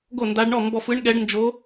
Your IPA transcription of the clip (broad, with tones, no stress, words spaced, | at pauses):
ɡo˥˨nda˧˥ɖɳɔ˥˨ mbɔ˧f ɯ˧˥ɳɠɛ˧˥ɖnd͡ʒo˧˥